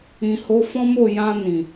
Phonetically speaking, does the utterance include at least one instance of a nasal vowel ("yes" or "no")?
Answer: yes